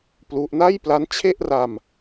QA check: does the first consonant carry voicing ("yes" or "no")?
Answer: no